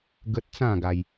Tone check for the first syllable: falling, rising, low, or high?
high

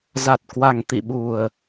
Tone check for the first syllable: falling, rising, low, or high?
low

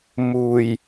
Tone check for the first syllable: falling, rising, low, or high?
low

